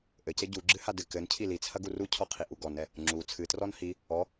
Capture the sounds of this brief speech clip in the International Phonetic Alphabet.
ʔ ɘ c e ɟ u ɡ͡ǁ ɨ h a d ɨ k ɘ n cʰ i l i t͡sʰ ɐ ɡ u r u cʰ ɔ qʰ i ʔ u ɡ ɔ n ɛ | ŋ͡ǁ u t͡sʰ ɨ t r ɔ n h i | ɔ

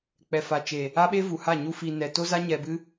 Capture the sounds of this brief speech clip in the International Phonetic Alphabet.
k͡p ɛ˨ f a˨ t͡ʃ e˨ | a˦ ɓ e˦ v u˨ h a˦˨ ɲ u˧ f iː˨ n ɛ˨ t o˦ z a˦ ɲ ɛ˧ b ɨ˦

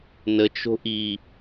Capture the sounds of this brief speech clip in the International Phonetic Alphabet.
n ə t͡ʃ o̤ ʔ i

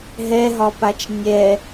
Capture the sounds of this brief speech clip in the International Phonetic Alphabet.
ɦ ɛ ɦ ɒ p a t͡ʃ nʲ ɛ

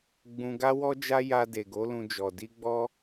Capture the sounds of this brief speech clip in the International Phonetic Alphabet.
ɡ͡b ũ˧ ɡ a˦ w ɔ˦ d͡ʒ a˦ j a˧ d e˨ ɡ o˨˦ l ũ˧ d͡ʒ ɔ˨ d i˧ ɡ͡b ɔ˦

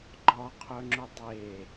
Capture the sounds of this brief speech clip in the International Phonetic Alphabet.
ɡ͡ǃ ɒ qʰ œ ŋ͡ǁ ʊ dˤ e

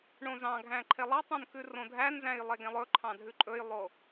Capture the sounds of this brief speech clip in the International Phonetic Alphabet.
ɳ õ z ɑ̃ ɡʱ æ̃ ǃʰ e lˠ ɑ tˤ õ n k ʉ r õ dʱ æ n z æ̃ j lˠ e ɡ ẽ lˠ ɵ ǃʰ ɑ̃ dʱ ʉ ǃʼ ɵ j lˠ o

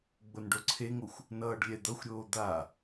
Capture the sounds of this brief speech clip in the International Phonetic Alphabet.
ɡ͡b o n ɖ o ǀʰ e ŋ o xʷ | n ʌː ɖ lʲ ɛ d̪ ʌ xʷ ɾʲ oː d̪ a

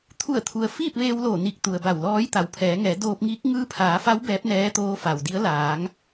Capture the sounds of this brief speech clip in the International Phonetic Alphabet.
t̪ʰ u˧˩ ə̯ t̪ʰ u˩ ə̯ f iː˥˨ p̚ ʋ eː˧ w l oː˧˩ n i˧˩ k̚ t̪ u˩ ə̯ b a˧˩ w l ɔː˧˥ j t̪ a˩ w pʰ ɛː˩˧ ŋ ɛː˩˧ d oː˧ p̚ ŋ iː˧˥ k̚ ŋ ɯː˧ pʰ aː˩˧ f a˧˥ w b ɛː˧˥ p̚ n ɛː˧˥ t̪ oː˧˥ f a˩ w d i˧˥ ə̯ l aː˩˧ ŋ

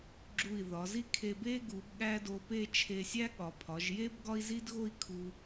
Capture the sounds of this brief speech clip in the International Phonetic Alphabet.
ɡ͡ǁ u˧˩ i̯ ð ɒ˩˧ z i˥ kʰ e˧ b e˥ ɡ u˩˧ b ɠ æ˥ d o˧ p e˥˧ t͡ʃʰ e˧ sʲ æ˥ ɠ ɒ˩˧ pʰ ɒ˩˧ ʒ j e˥ b ɡ ɒ˥ i̯ z i˥ d ɣ o˥ i̯ kʰ u˧

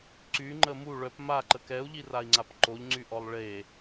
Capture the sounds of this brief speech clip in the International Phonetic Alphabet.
ǀ y ŋ͡ǃ ə m u ɭ œ p m a ǃ ə k ɛ u̯ ʎ i r a i̯ ŋ͡ǀ a p ǃ o ʎ ŋ͡ǀ y ʔ ɔ lˠ ɭ e

